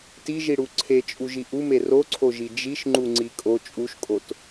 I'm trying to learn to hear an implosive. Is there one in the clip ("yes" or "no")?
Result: no